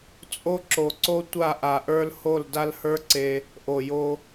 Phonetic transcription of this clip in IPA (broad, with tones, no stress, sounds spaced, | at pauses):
t͡sʼ o˧ ǁ o˨ ǀ o˧ tʷ a˦˨ ʔ a˨ ʔ ə˞˧ l h o˦˨ l d a˦ l h ə˞˦ ǀ e˧ | ʔ o˨ j o˧